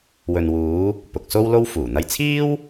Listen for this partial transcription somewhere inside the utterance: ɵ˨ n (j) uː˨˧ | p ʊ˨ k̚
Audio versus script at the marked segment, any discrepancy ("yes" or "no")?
yes